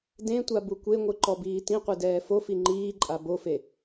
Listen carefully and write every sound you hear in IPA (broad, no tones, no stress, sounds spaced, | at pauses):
d ẽ tʷ a b u kʷ e ŋʷ ɨ ǃ ɔ b iː t ĩ qʷ e d ɛː f o f i ŋ͡ǃ iː ǃʼ a b o f e